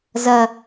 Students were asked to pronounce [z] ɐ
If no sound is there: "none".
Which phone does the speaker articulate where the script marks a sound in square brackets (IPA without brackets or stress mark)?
z